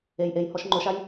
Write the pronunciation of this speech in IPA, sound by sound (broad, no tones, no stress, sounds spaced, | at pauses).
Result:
e j ʔ e j h ɔ ʃ ŋ͡ǃ o ʃ a j